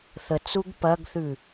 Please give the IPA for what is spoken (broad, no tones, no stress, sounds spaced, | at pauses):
θ ə t͡s u ɡ p ɐ ɡ θ ʉ